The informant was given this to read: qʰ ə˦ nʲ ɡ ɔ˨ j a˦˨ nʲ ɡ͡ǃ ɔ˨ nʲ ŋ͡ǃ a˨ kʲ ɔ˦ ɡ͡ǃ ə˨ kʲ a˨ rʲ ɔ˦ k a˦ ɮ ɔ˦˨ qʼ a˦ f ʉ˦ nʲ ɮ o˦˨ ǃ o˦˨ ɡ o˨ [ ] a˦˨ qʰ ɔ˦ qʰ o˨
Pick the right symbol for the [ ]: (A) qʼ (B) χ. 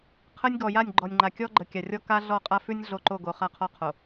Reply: B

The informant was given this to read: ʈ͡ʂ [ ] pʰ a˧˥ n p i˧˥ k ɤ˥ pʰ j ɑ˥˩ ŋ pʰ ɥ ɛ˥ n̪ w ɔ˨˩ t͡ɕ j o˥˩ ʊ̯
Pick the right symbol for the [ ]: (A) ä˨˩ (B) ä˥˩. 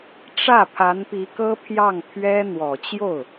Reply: B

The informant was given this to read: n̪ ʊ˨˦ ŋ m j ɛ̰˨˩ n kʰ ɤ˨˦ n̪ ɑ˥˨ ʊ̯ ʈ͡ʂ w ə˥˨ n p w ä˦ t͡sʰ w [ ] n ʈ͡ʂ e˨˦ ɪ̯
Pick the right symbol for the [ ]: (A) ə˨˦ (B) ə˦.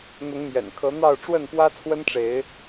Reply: B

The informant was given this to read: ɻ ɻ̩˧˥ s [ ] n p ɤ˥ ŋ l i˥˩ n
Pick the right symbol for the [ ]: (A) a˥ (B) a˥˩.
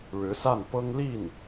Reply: B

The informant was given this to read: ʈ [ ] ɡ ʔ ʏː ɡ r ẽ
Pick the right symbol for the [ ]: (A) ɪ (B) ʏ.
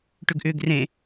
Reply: B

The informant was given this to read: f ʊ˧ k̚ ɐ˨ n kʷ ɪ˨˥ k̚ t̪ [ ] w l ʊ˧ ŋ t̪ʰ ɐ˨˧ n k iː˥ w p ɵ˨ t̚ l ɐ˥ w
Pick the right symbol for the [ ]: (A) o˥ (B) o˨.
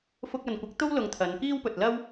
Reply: A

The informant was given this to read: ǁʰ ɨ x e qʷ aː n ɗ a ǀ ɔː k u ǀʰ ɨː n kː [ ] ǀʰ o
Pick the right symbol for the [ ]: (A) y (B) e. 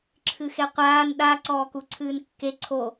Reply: B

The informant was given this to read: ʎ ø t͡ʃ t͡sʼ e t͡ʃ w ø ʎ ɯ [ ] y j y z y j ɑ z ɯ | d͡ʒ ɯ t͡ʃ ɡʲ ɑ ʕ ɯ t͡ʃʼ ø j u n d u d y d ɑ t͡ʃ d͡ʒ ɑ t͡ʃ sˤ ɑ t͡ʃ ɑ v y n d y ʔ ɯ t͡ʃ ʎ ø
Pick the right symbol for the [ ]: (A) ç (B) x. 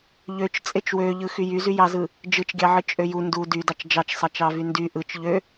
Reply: B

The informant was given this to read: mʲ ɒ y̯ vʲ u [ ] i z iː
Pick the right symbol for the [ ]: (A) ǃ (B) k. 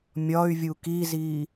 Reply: B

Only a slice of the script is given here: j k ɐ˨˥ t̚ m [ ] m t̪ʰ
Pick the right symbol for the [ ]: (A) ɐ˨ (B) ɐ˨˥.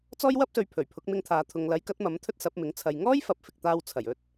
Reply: B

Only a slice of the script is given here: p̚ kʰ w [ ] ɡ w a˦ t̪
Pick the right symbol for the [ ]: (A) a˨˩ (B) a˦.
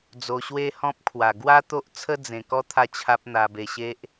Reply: A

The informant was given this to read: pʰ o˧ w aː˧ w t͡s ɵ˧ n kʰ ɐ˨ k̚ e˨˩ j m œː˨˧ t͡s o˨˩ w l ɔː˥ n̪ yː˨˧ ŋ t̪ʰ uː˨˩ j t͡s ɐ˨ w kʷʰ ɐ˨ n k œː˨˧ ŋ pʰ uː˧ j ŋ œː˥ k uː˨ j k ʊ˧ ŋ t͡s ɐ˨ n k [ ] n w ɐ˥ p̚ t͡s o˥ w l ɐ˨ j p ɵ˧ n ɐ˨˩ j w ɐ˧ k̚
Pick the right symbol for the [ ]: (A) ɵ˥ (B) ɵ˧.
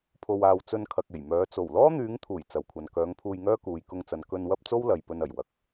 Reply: B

